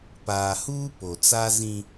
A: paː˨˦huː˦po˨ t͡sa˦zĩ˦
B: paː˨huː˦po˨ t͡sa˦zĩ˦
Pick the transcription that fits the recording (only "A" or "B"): B